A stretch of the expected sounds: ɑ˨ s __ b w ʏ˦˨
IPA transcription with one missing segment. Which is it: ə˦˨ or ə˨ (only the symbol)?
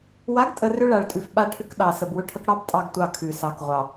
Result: ə˨